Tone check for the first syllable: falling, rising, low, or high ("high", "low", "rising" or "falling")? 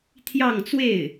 falling